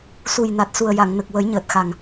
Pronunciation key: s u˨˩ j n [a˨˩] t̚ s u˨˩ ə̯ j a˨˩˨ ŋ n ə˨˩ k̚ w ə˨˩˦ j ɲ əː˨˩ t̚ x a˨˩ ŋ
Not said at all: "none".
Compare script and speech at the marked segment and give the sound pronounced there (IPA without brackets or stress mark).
a˨˩